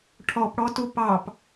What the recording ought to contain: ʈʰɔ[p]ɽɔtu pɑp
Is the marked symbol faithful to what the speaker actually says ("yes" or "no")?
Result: yes